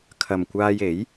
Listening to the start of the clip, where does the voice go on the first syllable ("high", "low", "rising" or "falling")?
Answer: low